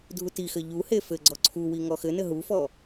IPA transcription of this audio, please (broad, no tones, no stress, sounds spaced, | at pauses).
dʱ u t i x ɘ ʎ u h e f ɘ ɡ͡ǀ ɔ ǀʰ u w i ŋ ɔ x ɘ n ɘ ɦ u f ɔ